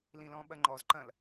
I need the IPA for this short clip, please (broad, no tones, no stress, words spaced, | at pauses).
lĩlɔ̃ɓɐŋ͡ǃɔz ǃɐ̃l